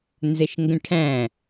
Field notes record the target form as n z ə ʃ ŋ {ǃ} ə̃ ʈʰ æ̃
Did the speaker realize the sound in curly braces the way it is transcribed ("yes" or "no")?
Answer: no